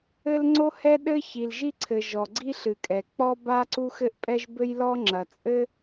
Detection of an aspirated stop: present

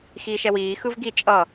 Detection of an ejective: present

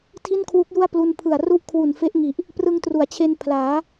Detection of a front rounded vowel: absent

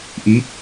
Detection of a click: absent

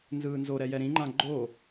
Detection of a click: present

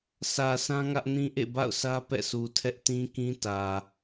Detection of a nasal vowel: present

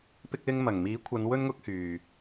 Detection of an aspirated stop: present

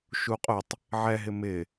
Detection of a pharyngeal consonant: present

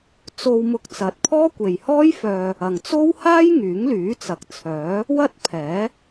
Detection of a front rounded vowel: present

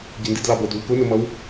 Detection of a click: absent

